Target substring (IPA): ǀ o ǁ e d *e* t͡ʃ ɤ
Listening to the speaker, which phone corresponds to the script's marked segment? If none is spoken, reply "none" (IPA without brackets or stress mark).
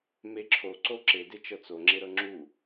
e